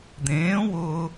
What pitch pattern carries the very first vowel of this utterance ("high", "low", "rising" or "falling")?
rising